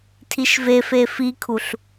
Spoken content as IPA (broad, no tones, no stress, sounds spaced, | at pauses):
tʰ i ʃ v e f e f i kʰ u ɬ